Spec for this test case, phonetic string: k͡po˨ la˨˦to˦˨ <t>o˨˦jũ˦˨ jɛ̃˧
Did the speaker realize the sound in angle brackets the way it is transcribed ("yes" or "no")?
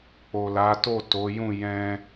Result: yes